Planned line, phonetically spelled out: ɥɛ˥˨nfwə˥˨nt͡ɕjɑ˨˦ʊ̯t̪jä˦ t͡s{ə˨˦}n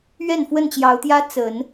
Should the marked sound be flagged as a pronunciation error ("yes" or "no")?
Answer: no